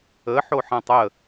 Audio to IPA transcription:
ə ħ o ħ ã tˤ ə

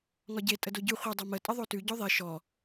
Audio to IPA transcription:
ŋ ɒ ɟ e tʼ ə d o ɟ ʉ χʷ i dˤ o m ə tʼ ə ðˤ o t ʉ ɟ o ðˤ i ʃ ɔ

